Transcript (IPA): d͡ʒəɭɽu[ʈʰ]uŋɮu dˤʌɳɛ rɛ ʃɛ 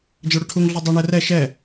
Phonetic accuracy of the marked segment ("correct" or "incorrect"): correct